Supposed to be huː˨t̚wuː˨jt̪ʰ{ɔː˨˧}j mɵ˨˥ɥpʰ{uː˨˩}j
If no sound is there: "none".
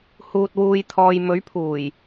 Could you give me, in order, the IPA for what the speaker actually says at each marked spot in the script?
ɔː˨, uː˨˩

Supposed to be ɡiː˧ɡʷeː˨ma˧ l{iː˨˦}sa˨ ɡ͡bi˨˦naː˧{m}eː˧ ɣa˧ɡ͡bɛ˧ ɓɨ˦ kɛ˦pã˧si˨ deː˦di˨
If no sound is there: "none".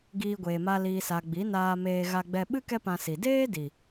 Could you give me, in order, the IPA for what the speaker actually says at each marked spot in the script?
iː˨, m

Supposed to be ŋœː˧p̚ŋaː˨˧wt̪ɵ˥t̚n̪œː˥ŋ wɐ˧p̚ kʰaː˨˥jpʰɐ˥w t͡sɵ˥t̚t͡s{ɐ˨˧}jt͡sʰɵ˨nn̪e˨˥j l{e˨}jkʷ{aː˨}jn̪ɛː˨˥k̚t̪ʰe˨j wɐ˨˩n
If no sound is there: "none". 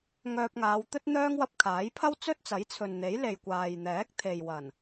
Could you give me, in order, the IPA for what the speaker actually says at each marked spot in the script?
ɐ˨˥, e˨, aː˨

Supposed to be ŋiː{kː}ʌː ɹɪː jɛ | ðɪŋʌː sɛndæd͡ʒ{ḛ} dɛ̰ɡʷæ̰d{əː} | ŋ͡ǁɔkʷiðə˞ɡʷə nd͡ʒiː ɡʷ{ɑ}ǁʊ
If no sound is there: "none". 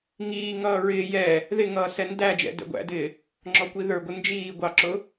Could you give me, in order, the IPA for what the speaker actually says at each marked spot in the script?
ŋ, ɛ̰, ɪː, ɑ

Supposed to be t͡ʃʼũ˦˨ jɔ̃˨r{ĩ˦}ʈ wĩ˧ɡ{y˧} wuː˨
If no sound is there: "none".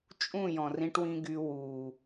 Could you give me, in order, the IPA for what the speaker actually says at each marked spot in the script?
ĩ˧, y˧

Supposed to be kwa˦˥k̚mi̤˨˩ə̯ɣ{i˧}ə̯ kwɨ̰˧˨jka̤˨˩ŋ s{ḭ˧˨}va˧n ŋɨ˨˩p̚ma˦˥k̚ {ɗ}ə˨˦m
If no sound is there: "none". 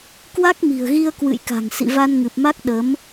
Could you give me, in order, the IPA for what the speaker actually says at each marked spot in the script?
i˧, ḭ˧˨, ɗ

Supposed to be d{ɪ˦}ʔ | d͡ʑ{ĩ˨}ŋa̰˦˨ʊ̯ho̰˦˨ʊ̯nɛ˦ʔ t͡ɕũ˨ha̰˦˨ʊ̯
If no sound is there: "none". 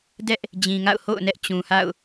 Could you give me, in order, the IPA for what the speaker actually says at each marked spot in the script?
ɛ˦, ĩ˨

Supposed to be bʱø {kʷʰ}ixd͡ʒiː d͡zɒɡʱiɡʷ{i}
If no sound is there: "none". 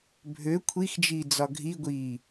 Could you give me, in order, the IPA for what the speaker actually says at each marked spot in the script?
kʷʰ, iː

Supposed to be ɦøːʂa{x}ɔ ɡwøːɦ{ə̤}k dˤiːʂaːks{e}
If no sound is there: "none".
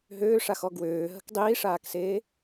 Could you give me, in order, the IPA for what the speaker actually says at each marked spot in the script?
x, ə̤, eː

